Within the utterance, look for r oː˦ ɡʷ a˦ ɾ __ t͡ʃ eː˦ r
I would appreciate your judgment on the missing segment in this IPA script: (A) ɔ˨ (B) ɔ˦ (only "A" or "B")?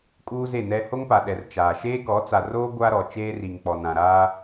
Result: A